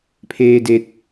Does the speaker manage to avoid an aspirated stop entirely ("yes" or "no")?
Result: no